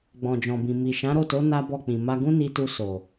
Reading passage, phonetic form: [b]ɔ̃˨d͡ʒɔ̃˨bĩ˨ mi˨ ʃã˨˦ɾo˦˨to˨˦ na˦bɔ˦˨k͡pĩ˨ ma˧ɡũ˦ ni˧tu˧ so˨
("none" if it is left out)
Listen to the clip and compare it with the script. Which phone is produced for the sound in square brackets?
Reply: ɡ͡b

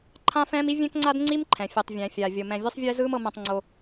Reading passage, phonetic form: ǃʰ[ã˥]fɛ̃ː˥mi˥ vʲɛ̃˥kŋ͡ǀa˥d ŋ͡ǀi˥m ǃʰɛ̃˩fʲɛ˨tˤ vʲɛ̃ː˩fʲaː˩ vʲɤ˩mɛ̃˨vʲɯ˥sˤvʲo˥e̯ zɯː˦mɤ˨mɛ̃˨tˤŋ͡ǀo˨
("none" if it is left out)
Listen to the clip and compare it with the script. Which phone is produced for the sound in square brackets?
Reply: ã˥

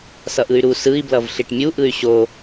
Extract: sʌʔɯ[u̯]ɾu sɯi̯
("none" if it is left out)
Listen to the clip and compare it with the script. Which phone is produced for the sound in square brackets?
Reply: y̯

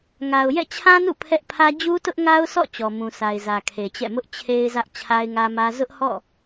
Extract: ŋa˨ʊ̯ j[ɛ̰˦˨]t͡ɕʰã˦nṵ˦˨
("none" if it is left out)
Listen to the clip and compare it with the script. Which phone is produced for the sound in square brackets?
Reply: ɛ̰˦˨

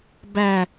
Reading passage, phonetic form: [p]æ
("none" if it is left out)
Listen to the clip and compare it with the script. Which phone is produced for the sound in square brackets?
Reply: b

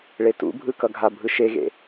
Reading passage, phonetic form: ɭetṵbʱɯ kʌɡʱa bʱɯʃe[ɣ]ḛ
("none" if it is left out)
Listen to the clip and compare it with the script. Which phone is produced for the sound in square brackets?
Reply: ɣ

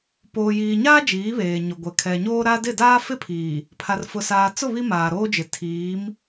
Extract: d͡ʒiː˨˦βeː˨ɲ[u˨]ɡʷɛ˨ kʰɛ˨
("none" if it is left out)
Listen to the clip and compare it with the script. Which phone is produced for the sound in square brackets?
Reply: ʊ˨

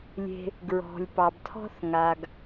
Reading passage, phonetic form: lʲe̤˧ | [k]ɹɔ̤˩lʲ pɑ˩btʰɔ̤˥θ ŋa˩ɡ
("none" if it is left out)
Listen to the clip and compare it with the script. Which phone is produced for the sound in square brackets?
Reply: ɡ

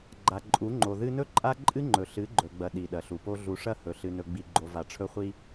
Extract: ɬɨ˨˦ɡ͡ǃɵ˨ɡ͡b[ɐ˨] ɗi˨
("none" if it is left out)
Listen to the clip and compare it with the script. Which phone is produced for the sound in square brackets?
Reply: ɐ˨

